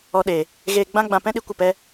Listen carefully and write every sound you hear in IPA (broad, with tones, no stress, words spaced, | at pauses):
ɔ˦ɗe˧ | ɣeː˧ɡ͡bã˦ɡ͡bã˧pɛ̃˦ ɗi˧kʷə˦˨pɛ˦